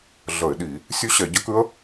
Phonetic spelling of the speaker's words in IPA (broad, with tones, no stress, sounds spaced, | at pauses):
ɮ ə˧˩˧ ɪ̯ ɗ i˧˩˧ | sʲ ʉ˦˥ ɕ ɛ˧˩˧ ɟ ə˦˥ k ʉ˦˥ ə̯